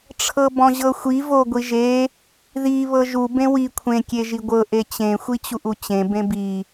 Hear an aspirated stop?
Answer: yes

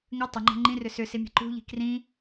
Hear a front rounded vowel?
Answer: yes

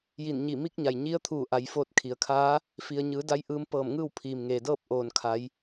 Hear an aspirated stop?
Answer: yes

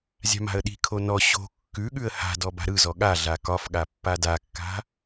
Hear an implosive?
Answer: yes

